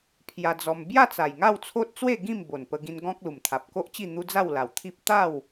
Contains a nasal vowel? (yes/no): yes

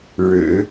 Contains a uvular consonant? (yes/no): no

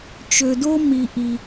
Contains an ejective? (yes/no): no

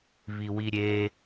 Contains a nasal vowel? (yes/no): no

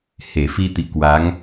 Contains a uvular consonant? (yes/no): no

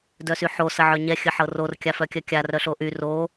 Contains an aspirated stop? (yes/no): no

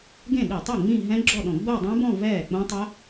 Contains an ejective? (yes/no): no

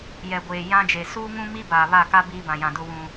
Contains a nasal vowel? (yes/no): yes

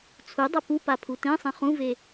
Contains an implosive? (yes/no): no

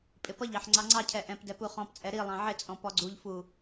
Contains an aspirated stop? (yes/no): yes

